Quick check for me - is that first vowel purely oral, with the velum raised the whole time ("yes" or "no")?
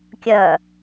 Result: yes